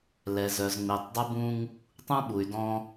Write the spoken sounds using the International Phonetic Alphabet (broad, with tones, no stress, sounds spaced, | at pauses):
l ɛ˨ z œ˨ z ŋ͡m e˨ tˤ dˤ ʊ˦ b ũ˦ ŋ | tˤ ũ˦ ɓ u˨ y̯ d ɔ̃˦